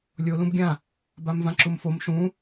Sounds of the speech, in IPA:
lʲ o l ũ b ɡʲ ã | b a m v ã ǁ u m f o m ʃ ũ

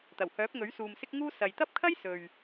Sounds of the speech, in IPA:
t̪ ɐ˨˩ w h œː˨˥ p̚ ŋ ɵ˨˥ ɥ s uː˨ m s ɪ˥ k̚ ŋ uː˥ s ɐ˨ j t̪ ɐ˥ p̚ kʰ ɐ˥ j s ɵ˨ ɥ

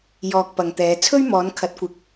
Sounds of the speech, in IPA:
j ɔː˧ k̚ p ɐ˨ ŋ t̪ ɛː˨˧ t͡sʰ ɵ˥ ɥ m ɔː˨˧ n kʰ ɐ˨˥ t̚ kʷ ɪ˨˥ k̚

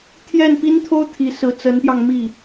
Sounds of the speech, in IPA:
t̪ʰ j ɛ˥˩ n p i˥ n t̪ʰ o˥ ʊ̯ t̪ʰ i˧˥ s ɹ̩˧˥ t͡s ə˧˥ n p j ɑ˧ ŋ m i˥˩

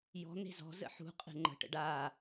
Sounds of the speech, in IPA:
j ɔ̤ n̪ e̤ z ɔ̤ z ə̰ ħ ṳ qʼ e̤ ŋ͡ǃ ə̤ ʈ ə̰ ɖ a

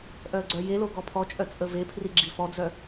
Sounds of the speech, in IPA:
ʔ œ ə̯ ɡ͡ǀ œ j e l o ɡ ɔ pʰ ɔ t͡ʃʼ œ t͡sʼ ə v e pʰ r i ɡ͡ǁ i f ɔ d͡z œ

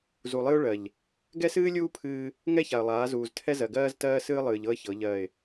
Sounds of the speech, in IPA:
z u˨ lˠ ɨ˦ ʊ̯ ɭ ɜ˨ ʎ | ɡ ɛ˦ s ɨː˦ lʲ uː˦ pʰ ɨː˦ | ŋ ɛ˦ ç a˨ ə̯ lˠ aː˨˦ z uː˨ z tʰ ɛ˦ z ɜ˨ ɡ ɜː˦ z t ɜː˦ s ɨː˦ lˠ ɨː˨ ʎ ɤ˦ ə̯ ç ɤ˨˦ ʎ ɜ˦˨ ɪ̯

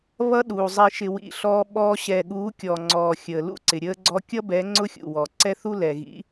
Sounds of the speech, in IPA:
β ʌ˦ ɗ u˨ zˤ i˨ ʃ ɪ˨ w ḭ˨ ɬ ɔː˧ ɓ ɔː˧ ɕ ɛ˨ ɠ uː˨˦ kʲ ɔ˨ ŋ͡ǀ ɔː˨ xʲ əː˨ l ṵ˦ ǀ ɪ˨ ɾʲ əː˧ ɡ͡ǀ ɔ˧ kʲ ʌ˦ b ɛ˨˦ ŋ͡ǀ ʊ˦ xʲ ṵ˨ w ɔ˨ ǀ ɛ˦ θ u˦ l ɛ˨ ɣ ḭ˨˦

